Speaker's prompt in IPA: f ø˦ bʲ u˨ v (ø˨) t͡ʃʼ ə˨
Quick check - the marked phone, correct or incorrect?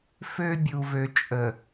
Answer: correct